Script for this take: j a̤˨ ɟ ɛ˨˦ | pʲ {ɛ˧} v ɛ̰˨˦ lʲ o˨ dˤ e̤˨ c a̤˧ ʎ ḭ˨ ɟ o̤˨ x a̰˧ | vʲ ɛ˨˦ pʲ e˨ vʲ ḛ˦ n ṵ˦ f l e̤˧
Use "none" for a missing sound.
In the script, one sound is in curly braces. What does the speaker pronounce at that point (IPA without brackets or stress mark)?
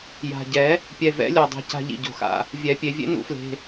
ɛ˨